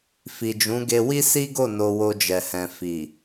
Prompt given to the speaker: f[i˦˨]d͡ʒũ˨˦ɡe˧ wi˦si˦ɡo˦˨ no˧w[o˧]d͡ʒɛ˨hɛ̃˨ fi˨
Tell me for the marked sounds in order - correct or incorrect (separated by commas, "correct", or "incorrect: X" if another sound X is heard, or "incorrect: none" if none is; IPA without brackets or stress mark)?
incorrect: i˨, correct